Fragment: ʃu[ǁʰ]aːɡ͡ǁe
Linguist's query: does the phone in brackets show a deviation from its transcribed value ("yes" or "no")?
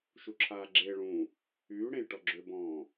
no